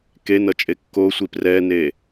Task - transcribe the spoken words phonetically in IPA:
kenʌt͡ʃʼe kːosʷi prɛne

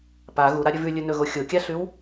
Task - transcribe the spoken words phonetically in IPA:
pa ɣuɾaɾʲɵ vʉlʲɵnɵɣo xʲokʲaɬʉw

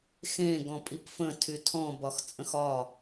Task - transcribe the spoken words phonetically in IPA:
xẽ ɡɔ̃pʼipfə̃ tʰytʰɔ̃ bɒxt͡sʼə̃xɒ

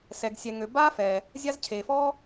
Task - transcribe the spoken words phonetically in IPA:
sɛ˩ɡsʲɛ˩ŋø˩ baː˥fɛː˩ | zʲa˥z cʰeː˩fɔː˥

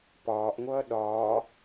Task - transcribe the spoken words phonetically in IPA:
pɒːʔŋʷʌː ɗɒː

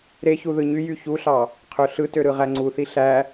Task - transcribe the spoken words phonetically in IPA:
ɾeçu ðɯɲyjy çuɬɑ | qʰøɬɯtø ɾɯʁæŋ͡ǀuθi ɬæ

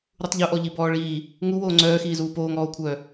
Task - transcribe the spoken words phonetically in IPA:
ɾutˤʎuʔɔ ʎibɔːɭiː | ŋuwoː ŋ͡ǀœːxiːzuː poːŋɔːo̯kʷʰœː

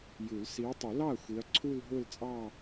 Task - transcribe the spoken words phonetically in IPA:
ju˨˩˦l si˨˦ɐ̯tˤʊ˨˩˦lɑ˥˩ɐ̯ xʷi˨˦ɐ̯ǀʰu˥˧l ɦʊ˥˧lt͡sʼɑ˥˧

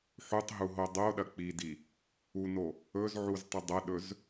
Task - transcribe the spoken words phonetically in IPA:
ħutˤɦuɦo dˤoɗɐ k͡pidi | uno | ɵzʕuztˤɨ dˤɐɗɵz

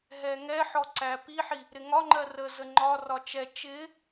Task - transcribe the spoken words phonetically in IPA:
ɦɛŋɛħɔ ǀæpiħi | ɾɪŋɒŋ͡ǃɜ rə zəŋ͡ǃɒrɒ t͡ʃɛ t͡ʃɪ

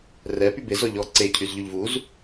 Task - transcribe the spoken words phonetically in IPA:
rɛ pybez ɔʎɔ ǀe cʰyzʎyʎvuz

